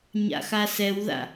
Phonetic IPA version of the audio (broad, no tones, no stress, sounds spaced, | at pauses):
ɲ a̰ x a s ɛ w ð a̰